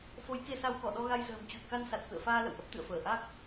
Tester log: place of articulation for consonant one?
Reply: labial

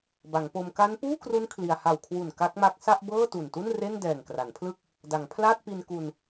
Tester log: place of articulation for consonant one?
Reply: labial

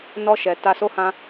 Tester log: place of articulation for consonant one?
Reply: alveolar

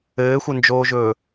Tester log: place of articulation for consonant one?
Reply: velar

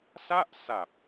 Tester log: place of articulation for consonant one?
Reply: alveolar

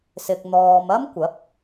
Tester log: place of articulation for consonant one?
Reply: alveolar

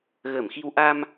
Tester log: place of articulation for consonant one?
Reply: velar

